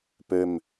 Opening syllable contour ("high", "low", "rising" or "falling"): low